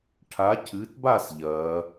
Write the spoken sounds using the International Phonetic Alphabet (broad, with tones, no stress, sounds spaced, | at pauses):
ʈʰ a˨˦ cʰ ɨ˨˦ t b a˥˧ s ʎ ɐ˨˦